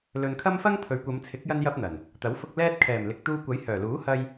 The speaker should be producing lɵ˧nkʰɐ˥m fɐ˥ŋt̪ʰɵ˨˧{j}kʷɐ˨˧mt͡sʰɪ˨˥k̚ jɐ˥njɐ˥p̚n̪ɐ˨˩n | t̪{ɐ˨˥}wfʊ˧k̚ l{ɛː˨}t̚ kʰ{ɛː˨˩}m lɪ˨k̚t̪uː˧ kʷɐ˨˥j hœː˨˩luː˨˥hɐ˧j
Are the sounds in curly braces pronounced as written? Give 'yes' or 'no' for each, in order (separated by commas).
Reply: no, yes, no, yes